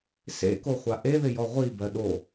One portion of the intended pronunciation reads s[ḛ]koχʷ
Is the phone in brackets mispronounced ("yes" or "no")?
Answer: no